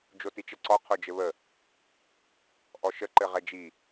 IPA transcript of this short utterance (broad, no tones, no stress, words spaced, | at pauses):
d͡ʒotit͡ʃəǀɔ qʰod͡ʒɘβə | ʔɔʃə ǃɘʁɛd͡ʒi